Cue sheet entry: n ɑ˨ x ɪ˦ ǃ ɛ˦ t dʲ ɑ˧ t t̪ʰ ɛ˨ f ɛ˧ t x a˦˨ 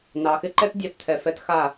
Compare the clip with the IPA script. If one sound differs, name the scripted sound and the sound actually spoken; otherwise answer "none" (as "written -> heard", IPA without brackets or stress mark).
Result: none